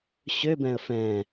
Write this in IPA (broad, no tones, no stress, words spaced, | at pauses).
ɕøbɛ̃ə̯ fɛ̃